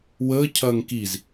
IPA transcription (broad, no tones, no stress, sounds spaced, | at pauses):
w əː cʰ ɐː ŋ k i z